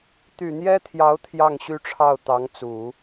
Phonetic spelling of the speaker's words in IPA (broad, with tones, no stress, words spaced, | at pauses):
t̪y˨˩n̪jɛ˥t̪ʰjɑ˧˥ʊ̯ t̪ʰjɑ˥˩ŋɕy˥ʈ͡ʂʰɑ˥˩ʊ̯t̪ɑ˧˥ŋ t͡su˨˩˦